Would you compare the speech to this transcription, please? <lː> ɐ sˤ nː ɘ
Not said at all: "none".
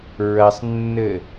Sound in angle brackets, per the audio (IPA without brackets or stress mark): ɹ